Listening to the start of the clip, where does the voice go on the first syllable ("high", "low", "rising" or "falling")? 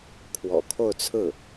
low